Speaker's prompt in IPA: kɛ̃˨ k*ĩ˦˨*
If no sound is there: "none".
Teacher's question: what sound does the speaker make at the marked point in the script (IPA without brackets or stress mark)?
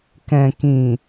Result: ĩ˨